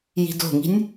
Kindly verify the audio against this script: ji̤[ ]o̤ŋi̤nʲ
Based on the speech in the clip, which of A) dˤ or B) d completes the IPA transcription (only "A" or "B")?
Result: B